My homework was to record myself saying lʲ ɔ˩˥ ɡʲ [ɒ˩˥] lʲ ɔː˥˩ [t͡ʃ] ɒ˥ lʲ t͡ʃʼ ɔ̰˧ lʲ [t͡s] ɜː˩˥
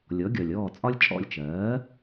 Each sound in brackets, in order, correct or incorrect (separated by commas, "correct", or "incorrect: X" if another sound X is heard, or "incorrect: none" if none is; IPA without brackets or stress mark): incorrect: ɒ˩, incorrect: t͡sʼ, incorrect: t͡ʃ